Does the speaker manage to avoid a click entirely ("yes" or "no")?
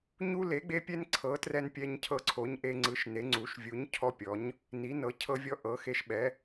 no